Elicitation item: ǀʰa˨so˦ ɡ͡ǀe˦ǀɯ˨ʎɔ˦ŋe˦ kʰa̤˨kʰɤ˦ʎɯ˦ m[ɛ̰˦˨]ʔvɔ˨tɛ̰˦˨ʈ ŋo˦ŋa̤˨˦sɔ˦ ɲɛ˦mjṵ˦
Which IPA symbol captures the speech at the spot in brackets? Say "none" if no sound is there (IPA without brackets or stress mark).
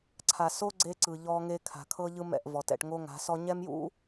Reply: ɛ̰˦˨